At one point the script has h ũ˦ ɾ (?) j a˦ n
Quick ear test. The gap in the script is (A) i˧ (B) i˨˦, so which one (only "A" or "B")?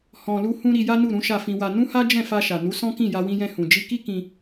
A